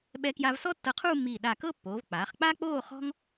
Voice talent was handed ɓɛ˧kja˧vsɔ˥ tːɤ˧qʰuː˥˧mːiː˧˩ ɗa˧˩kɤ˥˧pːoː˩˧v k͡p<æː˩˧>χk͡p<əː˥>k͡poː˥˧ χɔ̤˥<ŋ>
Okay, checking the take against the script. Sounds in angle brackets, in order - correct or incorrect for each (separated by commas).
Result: incorrect, incorrect, correct